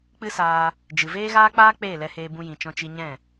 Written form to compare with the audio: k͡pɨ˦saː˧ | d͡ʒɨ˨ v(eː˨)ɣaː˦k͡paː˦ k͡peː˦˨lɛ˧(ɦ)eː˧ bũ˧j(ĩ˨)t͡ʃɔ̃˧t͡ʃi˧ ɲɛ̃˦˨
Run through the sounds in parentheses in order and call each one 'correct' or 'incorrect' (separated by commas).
incorrect, incorrect, correct